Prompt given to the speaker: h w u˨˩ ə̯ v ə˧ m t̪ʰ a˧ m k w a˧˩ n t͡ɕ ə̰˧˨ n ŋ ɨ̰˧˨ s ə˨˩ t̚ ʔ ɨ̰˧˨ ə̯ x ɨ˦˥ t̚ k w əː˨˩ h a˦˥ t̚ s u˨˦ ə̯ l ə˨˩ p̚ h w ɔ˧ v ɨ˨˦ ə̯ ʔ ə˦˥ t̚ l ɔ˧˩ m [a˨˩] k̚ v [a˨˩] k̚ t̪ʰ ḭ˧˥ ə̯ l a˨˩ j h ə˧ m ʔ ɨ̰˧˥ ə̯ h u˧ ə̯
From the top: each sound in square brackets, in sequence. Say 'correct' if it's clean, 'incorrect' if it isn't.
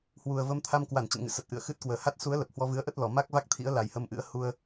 incorrect: a˦˥, incorrect: a˦˥

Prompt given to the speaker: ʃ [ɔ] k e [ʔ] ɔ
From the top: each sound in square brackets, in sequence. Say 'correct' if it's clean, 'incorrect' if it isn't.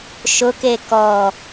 incorrect: ʊ, incorrect: k

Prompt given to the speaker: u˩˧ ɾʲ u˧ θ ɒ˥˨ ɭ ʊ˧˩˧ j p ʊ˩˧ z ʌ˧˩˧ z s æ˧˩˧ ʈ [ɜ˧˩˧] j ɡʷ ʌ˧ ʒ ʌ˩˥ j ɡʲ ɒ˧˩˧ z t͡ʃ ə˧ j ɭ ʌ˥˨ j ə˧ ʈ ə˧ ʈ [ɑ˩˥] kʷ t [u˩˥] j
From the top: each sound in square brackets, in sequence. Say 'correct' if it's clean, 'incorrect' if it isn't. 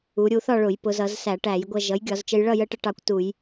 incorrect: æ˧˩˧, incorrect: ɑ˧, incorrect: u˧˩˧

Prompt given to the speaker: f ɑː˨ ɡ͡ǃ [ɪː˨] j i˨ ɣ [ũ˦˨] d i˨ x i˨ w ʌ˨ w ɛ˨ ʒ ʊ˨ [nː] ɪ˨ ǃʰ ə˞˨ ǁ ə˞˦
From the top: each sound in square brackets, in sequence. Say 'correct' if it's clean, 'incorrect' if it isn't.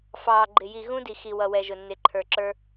incorrect: ɪ˨, incorrect: ũ˦, correct

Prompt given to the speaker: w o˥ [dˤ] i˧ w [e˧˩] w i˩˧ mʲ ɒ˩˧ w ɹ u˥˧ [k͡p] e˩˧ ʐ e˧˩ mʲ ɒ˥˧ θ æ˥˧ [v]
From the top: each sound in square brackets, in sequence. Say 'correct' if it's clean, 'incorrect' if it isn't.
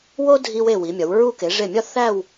incorrect: dʱ, correct, incorrect: k, incorrect: w

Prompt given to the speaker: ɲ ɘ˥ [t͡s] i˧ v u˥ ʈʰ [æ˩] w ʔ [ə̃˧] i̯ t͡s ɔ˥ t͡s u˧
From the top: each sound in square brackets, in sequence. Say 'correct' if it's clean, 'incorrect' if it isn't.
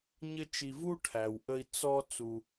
incorrect: t͡ʃ, correct, incorrect: ə˧

